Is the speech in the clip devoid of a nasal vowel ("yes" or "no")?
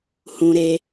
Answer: no